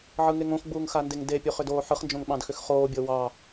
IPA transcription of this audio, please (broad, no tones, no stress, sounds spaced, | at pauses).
ʕ ɯ ŋ e ŋ õ x ɡ͡b uː ŋ x a n d e ŋ d e pʲ o χ ʏ d oː ħ ɯ χ n d͡ʒ õ ŋ ɓ ɑ̃ d x ʏ x χ oː bʲ ɤ w ɑ